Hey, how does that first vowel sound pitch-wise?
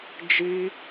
high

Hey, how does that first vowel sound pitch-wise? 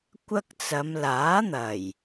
high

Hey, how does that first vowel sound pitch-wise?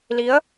rising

